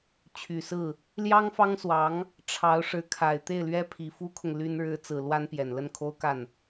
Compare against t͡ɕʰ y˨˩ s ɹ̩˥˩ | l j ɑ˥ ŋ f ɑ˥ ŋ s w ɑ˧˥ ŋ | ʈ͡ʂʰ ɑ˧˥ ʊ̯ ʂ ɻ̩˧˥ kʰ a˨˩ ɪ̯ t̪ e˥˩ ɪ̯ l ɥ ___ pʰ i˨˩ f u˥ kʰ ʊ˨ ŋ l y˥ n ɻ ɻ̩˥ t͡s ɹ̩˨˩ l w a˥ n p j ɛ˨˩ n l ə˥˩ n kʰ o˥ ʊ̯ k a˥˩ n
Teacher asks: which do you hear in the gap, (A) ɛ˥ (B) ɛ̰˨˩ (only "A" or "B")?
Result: A